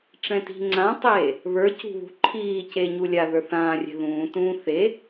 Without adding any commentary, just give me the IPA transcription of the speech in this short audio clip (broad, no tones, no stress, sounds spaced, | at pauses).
ʈ͡ʂ ɛ̃ t i̤ ŋ͡ǀ ã tˤ eː | β ə˞ c ṳ β ṳ ǃʰ iː c eː ɲ u lʲ a ð ə˞ θ ãː rʲ ɛ̤ ð ũː t ũː θ e